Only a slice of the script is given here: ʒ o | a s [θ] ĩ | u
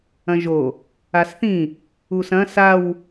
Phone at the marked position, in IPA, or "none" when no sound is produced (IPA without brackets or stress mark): θ